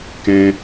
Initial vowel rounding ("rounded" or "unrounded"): unrounded